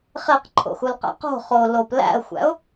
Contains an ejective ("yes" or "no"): no